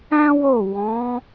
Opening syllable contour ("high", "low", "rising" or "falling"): high